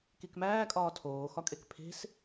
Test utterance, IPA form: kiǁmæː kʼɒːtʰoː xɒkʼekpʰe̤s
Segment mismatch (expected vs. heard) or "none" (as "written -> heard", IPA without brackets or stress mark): ǁ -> k